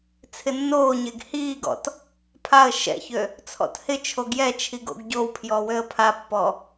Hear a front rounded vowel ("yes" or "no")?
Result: yes